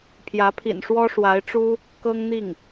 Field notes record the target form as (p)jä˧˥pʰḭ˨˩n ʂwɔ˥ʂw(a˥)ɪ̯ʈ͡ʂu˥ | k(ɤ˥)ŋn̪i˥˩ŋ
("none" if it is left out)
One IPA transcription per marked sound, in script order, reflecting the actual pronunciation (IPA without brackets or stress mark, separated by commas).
pʰ, a˧˥, ɤ˥